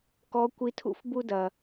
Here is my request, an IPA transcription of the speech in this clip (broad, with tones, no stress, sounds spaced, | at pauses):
k ɔ˧˥ kʷ i˧˥ tʰ ṵ˥ f b u˧ d ɐ˩